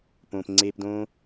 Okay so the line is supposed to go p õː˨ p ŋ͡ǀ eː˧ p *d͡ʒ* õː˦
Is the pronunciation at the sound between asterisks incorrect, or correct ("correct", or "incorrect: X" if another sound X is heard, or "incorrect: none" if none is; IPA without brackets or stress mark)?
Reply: incorrect: d